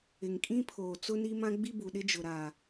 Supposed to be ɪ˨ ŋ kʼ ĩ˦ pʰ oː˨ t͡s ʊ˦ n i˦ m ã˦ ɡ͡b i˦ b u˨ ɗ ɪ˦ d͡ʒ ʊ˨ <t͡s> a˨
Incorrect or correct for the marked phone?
incorrect: ɾ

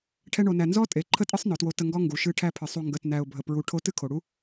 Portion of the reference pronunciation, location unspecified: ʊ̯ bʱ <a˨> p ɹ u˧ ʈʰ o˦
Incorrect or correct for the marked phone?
incorrect: ə˨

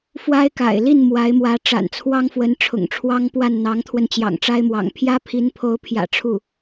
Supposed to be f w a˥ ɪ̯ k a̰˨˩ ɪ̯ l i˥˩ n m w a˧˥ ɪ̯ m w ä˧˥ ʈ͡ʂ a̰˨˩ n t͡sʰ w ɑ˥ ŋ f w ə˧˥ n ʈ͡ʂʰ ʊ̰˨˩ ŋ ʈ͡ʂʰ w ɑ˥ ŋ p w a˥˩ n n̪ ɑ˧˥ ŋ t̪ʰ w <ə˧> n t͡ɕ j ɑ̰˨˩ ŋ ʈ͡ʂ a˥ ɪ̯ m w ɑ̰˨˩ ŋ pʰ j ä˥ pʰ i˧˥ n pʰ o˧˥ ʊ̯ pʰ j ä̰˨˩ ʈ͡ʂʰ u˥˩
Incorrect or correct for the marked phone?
correct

